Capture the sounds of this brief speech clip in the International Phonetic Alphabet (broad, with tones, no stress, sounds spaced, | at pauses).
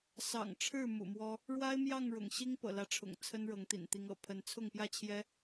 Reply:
s ɑ̰˨˩ ŋ ʈ͡ʂʰ ɻ̩˥˨ m ṵ˨˩ m w ɔ˦ | ɻ w a˦ ɪ̯ m j ɑ˥˨ ŋ ɻ ʊ̰˨˩ ŋ ɕ i˦ ŋ p ɤ̰˨˩ l ä˨˦ ʈ͡ʂʰ ʊ̰˨˩ ŋ t͡sʰ ə˦ n ɻ ɤ˨˦ ŋ t̪ ḭ˨˩ n t̪ i˨˦ ŋ ɤ̰˨˩ pʰ ə˨˦ n t͡sʰ ʊ˥˨ ŋ p j ä˥˨ t͡ɕʰ j ɛ˦